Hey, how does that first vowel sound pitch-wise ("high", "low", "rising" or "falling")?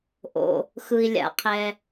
low